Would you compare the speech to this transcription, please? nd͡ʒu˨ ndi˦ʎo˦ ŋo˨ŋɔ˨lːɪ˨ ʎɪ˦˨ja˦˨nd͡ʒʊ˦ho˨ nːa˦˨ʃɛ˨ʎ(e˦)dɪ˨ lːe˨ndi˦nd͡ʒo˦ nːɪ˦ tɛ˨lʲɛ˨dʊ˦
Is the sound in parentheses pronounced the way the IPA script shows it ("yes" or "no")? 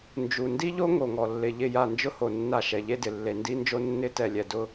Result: yes